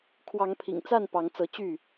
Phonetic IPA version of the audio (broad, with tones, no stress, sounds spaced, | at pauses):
kʰ w ɑ˨˦ ŋ pʰ ḭ˨˩ ŋ t͡s a˥˨ n p ɑ˨˦ ŋ t͡s ɤ˨˦ t͡ɕ y˥˨